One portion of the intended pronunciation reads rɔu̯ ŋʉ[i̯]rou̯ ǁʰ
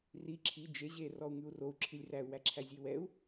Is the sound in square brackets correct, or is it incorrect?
incorrect